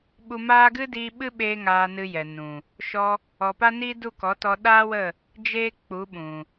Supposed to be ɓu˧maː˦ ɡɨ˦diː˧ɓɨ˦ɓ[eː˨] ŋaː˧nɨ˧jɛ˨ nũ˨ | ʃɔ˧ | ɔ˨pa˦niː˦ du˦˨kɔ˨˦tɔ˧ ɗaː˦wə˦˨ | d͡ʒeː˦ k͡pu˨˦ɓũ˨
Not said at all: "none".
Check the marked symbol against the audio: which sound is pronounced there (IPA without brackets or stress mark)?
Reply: eː˧